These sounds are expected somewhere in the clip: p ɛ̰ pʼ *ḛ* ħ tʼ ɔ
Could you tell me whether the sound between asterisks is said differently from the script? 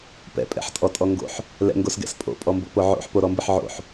yes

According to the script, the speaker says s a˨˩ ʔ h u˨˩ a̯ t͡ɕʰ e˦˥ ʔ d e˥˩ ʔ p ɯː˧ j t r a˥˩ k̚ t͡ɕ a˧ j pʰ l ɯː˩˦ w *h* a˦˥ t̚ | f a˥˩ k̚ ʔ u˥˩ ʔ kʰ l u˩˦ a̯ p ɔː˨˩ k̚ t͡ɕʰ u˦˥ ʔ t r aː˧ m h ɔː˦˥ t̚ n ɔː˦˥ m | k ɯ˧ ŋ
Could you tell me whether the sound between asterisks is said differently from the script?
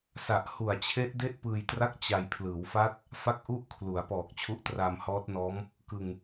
yes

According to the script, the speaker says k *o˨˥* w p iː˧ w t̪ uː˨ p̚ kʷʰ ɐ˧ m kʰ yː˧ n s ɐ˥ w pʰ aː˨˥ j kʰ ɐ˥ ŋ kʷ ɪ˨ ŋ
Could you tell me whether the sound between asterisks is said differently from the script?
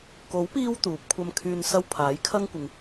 no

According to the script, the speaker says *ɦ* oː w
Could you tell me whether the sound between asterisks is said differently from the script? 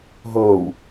no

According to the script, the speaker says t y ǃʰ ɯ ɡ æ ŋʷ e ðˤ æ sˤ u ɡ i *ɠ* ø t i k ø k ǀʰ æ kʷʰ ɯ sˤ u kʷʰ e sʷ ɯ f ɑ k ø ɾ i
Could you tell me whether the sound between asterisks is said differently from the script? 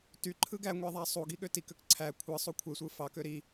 no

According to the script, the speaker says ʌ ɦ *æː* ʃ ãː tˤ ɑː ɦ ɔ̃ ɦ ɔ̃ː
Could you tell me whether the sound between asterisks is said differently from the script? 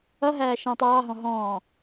no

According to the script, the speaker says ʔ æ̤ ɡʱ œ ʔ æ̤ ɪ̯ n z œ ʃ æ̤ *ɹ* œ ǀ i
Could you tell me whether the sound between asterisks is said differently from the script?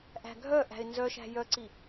yes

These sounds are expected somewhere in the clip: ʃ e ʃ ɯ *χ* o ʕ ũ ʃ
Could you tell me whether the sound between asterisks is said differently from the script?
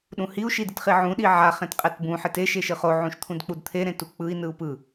no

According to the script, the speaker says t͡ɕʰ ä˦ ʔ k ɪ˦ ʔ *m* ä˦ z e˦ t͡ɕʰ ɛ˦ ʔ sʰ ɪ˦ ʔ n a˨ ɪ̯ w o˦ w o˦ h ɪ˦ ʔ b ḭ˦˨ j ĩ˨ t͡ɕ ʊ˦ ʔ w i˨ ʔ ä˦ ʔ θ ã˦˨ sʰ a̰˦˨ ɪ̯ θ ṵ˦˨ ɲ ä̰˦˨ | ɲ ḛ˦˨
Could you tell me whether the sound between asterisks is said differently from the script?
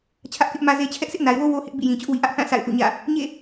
no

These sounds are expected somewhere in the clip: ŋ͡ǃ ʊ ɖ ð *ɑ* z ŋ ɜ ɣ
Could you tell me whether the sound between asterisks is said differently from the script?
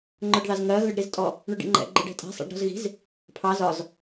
no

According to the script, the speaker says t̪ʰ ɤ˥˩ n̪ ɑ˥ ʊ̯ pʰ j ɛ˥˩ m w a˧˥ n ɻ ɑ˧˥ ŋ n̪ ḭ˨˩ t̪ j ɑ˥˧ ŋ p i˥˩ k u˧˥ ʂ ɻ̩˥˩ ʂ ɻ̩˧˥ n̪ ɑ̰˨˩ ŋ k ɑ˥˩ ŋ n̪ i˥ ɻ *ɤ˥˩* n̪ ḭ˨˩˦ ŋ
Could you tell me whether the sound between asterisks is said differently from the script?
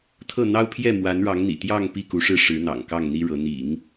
yes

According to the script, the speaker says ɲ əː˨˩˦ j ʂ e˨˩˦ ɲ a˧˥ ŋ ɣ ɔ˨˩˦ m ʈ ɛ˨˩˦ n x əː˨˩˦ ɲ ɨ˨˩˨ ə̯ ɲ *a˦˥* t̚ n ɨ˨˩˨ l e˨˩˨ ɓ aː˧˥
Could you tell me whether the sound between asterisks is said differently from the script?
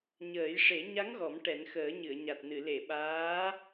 yes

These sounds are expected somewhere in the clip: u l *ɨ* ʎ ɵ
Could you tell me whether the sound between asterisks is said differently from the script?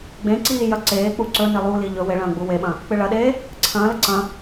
yes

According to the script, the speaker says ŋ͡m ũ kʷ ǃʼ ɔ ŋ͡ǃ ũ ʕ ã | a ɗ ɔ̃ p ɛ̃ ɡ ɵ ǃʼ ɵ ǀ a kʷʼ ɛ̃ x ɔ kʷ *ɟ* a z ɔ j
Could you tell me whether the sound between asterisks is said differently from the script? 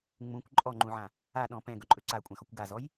yes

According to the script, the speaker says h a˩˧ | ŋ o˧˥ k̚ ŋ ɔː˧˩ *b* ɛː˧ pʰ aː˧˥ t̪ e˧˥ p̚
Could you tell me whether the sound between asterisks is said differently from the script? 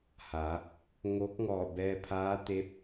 no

